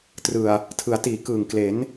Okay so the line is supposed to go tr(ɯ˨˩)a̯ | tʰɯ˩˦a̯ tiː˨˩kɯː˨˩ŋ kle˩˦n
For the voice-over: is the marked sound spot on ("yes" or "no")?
yes